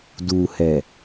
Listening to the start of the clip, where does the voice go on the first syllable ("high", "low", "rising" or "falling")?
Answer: low